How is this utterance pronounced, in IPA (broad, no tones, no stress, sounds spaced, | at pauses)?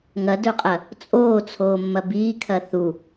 ŋ ɐ d ɵ qʼ ɐ | t͡sʼ oː t͡sʰ oː mː ɐ b iː kʰ ɐ θ u